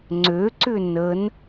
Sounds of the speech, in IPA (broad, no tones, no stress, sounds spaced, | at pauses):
ŋ͡ǀ ø ǀ ʏ n ə n